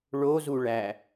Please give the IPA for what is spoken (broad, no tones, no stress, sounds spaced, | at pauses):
ɭ o z u ɭ æ